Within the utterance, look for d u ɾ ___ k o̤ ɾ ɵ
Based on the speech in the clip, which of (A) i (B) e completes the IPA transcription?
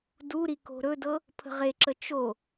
A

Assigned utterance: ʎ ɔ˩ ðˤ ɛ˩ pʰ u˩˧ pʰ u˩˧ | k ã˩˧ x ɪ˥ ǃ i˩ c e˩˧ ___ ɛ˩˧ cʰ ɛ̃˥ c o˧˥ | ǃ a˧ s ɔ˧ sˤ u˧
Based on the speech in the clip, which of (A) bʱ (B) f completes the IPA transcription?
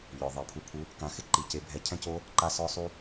A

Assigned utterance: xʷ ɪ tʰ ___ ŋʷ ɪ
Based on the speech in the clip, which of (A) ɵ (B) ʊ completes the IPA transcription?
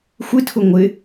B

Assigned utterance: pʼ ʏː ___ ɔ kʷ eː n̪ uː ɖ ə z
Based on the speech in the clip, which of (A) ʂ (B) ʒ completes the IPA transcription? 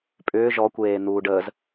B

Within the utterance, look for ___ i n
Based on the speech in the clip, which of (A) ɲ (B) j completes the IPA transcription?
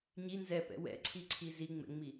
A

